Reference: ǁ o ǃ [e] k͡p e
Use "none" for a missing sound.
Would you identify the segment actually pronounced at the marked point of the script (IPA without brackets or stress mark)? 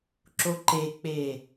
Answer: e